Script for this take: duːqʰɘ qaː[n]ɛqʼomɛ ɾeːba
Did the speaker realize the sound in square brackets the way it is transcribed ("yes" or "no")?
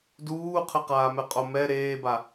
no